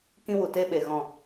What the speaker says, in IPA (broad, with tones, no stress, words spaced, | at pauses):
kĩ˧wu˨te˧ɓe˨ ɣɔ̃˨